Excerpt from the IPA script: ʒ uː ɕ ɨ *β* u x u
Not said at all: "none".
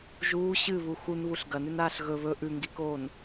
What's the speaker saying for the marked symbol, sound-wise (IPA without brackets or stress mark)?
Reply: β